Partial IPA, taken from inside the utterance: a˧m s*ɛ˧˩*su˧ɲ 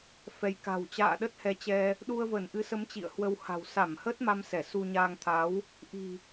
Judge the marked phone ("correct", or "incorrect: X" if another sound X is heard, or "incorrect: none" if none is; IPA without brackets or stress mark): correct